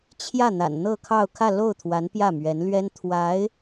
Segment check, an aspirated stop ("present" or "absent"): present